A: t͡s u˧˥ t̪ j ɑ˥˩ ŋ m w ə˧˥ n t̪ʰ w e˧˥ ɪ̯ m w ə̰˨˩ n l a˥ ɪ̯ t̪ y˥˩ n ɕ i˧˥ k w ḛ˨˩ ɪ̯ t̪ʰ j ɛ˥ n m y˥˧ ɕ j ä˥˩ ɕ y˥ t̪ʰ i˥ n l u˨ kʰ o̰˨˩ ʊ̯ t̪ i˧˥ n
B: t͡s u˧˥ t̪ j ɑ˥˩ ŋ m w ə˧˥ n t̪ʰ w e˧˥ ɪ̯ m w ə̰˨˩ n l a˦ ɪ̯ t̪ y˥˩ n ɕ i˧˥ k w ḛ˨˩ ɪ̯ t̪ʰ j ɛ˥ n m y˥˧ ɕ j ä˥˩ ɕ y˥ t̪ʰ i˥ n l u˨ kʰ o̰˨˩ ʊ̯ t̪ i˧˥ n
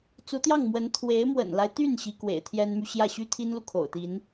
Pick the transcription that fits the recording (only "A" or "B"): B